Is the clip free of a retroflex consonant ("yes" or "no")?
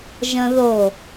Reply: yes